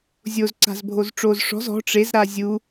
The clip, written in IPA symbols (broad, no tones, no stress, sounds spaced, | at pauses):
zʲ o z ǀ a̤ z bʱ o z ʈ͡ʂ o z ʂ ɔ̤ z ɔ̤ ʈ͡ʂ e z ɾ a zʲ u